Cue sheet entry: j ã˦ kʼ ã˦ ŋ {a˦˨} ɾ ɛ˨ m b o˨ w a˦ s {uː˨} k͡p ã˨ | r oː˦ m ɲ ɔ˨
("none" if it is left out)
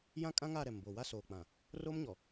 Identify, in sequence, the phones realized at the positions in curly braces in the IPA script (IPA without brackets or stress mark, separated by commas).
a˦˨, oː˨